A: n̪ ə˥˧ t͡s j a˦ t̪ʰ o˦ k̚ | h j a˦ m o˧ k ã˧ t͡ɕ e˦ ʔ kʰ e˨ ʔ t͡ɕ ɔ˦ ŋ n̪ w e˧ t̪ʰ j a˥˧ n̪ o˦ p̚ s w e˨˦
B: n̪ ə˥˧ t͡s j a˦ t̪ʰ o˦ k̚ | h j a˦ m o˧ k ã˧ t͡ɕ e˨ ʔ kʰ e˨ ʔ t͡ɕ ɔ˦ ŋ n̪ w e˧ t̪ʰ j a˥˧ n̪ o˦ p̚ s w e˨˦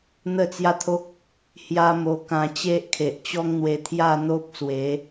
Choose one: A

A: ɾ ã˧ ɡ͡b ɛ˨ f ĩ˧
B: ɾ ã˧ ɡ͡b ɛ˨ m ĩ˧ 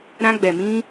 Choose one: B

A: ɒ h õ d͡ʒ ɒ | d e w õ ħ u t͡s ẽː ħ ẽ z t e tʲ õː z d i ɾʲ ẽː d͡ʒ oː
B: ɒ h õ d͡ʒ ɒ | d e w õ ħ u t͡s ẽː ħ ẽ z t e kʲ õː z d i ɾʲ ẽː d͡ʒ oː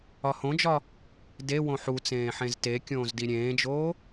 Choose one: B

